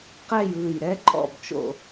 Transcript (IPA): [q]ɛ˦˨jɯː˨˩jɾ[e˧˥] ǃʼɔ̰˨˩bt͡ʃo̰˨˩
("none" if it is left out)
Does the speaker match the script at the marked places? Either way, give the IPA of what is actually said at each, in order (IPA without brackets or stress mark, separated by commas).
q, ɛ˧˥